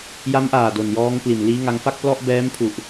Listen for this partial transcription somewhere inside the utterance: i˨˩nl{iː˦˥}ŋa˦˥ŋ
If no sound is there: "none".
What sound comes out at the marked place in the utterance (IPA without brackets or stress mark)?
iː˦˥